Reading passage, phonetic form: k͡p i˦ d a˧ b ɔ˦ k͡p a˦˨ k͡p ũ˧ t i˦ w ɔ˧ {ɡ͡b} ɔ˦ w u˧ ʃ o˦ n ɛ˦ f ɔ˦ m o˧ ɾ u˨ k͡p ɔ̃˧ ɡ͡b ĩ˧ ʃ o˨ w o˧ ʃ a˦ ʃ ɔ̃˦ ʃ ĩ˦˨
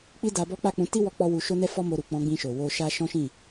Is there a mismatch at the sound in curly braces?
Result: yes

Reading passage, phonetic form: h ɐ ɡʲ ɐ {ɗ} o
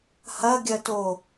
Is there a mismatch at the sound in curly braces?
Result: yes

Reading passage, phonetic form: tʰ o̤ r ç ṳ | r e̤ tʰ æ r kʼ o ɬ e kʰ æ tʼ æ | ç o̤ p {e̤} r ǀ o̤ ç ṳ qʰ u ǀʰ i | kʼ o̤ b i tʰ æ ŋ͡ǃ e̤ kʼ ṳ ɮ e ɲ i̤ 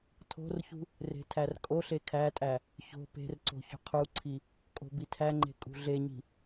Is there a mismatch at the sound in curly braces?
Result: no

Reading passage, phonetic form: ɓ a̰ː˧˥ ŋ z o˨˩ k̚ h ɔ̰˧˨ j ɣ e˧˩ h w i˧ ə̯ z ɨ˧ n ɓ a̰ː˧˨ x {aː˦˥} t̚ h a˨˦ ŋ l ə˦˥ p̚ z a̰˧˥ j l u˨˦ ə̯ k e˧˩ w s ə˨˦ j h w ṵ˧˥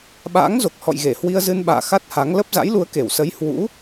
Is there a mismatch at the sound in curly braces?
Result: yes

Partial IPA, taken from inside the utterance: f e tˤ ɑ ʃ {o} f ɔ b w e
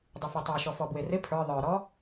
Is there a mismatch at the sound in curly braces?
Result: yes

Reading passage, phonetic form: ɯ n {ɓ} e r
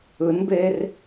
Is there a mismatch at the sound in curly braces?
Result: yes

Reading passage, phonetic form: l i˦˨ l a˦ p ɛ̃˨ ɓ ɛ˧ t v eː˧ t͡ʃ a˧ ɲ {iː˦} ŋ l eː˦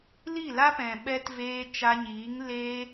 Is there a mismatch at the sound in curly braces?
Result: yes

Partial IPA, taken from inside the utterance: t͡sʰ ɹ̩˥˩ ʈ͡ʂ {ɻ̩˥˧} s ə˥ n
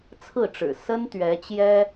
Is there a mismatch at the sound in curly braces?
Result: yes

